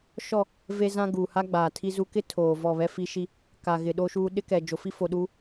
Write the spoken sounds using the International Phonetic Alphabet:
ʃɔ˦˨ | ve˦zã˦ɡuː˨ ha˦ ɡ͡baː˨tʰi˦zu˦ kɪ˦ tʰoː˨ vɔ˦˨βɛ˦fi˦ ʃi˦ | ka˨ɣɪ˨ ɗo˦ʃuː˦ ɗɪ˦kɛ˨ d͡ʒo˨fi˦fo˨ɗuː˦

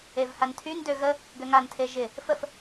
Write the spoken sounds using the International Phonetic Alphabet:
evhantʰyn døɣə | ɡøŋan tʰeʒɪ | fəf

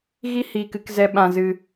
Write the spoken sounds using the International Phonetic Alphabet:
ɣi˦ hiː˨kɨ˧k zɛ˧ ɓã˧zɨ˧

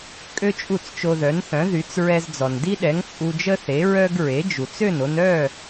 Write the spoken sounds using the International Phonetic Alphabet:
kʼø˥t͡ʃʼu˥˩t͡st͡ʃo˧ ðœ˩˥nθœ̃˩˥ðy˩˥t͡s ɹɛ˧zd͡zɔ˩ndi˥ɗɛ˩˥ŋ t͡sʼu˧d͡ʒə˥θe˩˥ ɹœ˧ɡ ɹe˩˥d͡ʒu˩t͡s ø˥˩no˧nœ˥˩

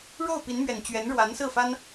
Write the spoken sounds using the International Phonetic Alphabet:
ɻo˥˩ʊ̯pi˧˥nmɥɛ˨˩nt͡ɕɥɛ˧˥n ɻwa˧˥nsɹ̩˥˩fa˥n

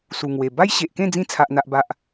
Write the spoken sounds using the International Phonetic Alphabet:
su˨˩ŋwe˨˩ ba˦jɕe˨ʔkẽ˥˧ d͡zĩ˧t͡sʰa˨ʔn̪a˨ʔ ba˨ʔ

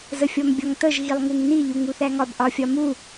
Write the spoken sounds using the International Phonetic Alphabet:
zəfʲɔmbʲɒŋtəʒ ɣilˠŋuŋni ʎuŋuθæŋɒb ʔɒfʲɒmu

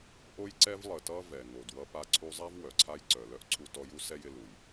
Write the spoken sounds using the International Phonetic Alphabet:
ʔo˧jǀɛ˧v lˠə˩tʌ˧ vɛ˩ŋo˩d wʌ˧pa˧ ǀʰu˧zˤa˥v wœ˩ǀʰa˥j ǀœ˩lœ˥ʔ ǀʰu˧tɔ˧ju˥ sɛ˥jɪ˧ lu˩j

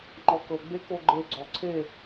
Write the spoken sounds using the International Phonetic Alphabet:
ŋ͡ǃɔkɤ ɡ͡bekoɡ͡ǃe ɡ͡ǀɔǀʰe

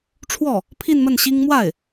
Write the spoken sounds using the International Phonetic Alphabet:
ʈ͡ʂʰwɔ˥˩ | pʰi˥˧nmə˥˩nɕi˥ŋ mwa˥˩ɪ̯

